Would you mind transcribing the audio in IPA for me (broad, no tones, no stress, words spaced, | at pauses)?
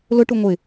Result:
lʊʈu ŋʷɪ